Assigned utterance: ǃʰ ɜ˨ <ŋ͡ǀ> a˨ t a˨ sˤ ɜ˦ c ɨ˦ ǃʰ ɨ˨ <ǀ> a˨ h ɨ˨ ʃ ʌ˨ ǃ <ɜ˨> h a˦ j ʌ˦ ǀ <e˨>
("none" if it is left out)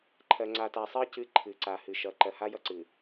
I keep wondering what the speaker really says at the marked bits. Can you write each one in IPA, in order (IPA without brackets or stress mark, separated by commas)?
ŋ͡ǀ, ǀ, ɜ˨, ɨ˨